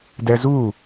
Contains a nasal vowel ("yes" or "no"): no